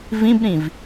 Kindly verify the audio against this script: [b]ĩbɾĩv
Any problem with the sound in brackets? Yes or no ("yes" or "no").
yes